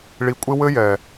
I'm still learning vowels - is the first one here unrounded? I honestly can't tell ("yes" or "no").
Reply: yes